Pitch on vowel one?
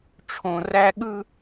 low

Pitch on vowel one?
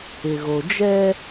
low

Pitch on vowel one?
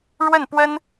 falling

